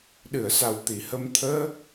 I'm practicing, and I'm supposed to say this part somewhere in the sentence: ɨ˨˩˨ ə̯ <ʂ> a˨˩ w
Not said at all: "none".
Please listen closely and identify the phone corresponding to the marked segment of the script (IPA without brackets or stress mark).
s